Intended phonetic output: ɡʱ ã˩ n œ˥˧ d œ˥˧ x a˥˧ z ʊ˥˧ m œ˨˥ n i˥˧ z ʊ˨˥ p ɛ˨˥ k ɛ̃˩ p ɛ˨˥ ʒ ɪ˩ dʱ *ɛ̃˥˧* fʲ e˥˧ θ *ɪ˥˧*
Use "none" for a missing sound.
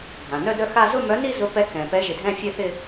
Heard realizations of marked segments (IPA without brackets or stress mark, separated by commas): ɛ̃˥˧, ɪ˥˧